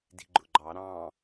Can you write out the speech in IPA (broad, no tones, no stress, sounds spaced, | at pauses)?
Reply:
d i̤ ɡ͡ǃ ʊ ɡ͡ǃ ɑ ɾ ɑ̃